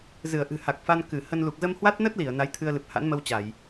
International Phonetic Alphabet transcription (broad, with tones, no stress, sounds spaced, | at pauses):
z ɨ˧˩ ə̯ ʔ ɨ̤˨˩ h a˨˩ k̚ f a˧ n k ɨ˧˩ h ə˧ n l u˨˩ k̚ z ə˧ m h w a˦˥ t̚ n ə˦˥ t̚ l i˧˩ ə̯ n a˨˦ j t̪ʰ ɨ˧ ə̯ l ɨ˨˩ p̚ h a̰˧˥ n m ə˧ w t͡ɕ a˧˩˨ j